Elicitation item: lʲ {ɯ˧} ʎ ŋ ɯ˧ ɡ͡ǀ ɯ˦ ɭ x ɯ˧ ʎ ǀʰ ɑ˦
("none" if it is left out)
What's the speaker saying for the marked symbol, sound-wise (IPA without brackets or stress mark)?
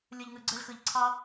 ɯ˧